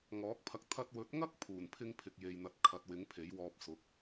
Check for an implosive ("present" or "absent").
absent